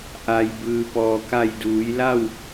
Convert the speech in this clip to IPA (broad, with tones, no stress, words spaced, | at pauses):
ʔa˩jbɯː˩ pɔː˩ka˧˩jduː˩˧jla˥˨w